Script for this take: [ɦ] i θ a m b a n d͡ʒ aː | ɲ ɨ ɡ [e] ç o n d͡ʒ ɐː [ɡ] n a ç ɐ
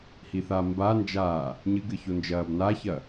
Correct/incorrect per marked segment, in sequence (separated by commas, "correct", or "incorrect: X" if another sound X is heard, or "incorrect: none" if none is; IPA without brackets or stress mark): incorrect: h, incorrect: ɨ, incorrect: b